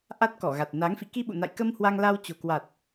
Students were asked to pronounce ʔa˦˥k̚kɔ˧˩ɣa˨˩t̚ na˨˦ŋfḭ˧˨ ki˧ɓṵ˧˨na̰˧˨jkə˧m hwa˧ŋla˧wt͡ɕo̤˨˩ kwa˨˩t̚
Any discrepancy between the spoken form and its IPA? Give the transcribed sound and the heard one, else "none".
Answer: k̚ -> t̚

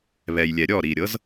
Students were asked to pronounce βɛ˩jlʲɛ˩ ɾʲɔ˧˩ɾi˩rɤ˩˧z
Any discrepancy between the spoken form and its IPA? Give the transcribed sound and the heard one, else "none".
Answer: r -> ɾʲ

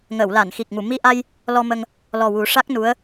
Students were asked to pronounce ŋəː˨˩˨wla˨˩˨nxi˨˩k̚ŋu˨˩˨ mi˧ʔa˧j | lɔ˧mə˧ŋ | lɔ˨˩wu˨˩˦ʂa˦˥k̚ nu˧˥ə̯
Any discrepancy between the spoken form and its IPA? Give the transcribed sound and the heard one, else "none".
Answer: none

